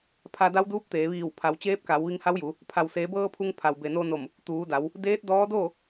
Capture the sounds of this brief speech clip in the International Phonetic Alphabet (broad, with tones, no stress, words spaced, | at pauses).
pʰa˧da˧˥wduː˧˥p̚ t̪eː˩˧ʋiː˧˩w pʰa˩˧wt͡ɕeː˧˥p̚ka˩˧w ʋi˧ŋha˧˥wju˩˧ | pʰa˩wseː˩˧bɤː˧ pʰu˧ŋ pʰa˩wbe˩no˧no˧˩m | t̪uː˩˧da˩˧w | deː˧˥t̚dɔː˧˥ doː˥˨